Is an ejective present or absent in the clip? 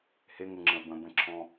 absent